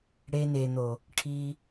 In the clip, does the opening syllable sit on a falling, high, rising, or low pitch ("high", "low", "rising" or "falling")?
high